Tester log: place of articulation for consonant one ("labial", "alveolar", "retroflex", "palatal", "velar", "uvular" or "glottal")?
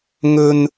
velar